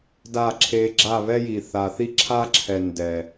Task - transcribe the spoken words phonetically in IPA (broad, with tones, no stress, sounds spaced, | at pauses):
d a˦˨ ǁʰ e˧ ɡ͡ǁ a˦˨ β ɛ˦ j i˨ θ a˨ θ i˦ ǁʰ a˦ ǁʰ ɛ˨ n d ɛ˨